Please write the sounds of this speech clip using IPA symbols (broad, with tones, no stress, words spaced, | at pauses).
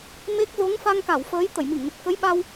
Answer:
me˦˥k̚ zo˨˦ŋ fa˧ŋka˧˩wfəː˨˦jt̪ə˧˩j mi˧˩ŋnə˨˩t̚kə˨˦j ɓa˧w